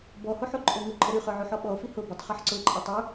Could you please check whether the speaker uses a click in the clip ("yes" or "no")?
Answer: yes